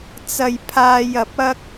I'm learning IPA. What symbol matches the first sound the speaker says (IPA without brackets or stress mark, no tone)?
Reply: t͡s